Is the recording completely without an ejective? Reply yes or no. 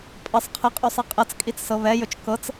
no